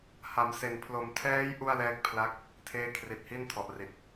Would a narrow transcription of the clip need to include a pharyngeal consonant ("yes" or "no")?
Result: no